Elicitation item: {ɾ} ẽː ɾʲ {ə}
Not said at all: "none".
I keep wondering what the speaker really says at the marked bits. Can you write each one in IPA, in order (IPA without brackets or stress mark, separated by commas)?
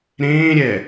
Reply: ɾ, ɛ